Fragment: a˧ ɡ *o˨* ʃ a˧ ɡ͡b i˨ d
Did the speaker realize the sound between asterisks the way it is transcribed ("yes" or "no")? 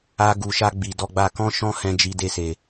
no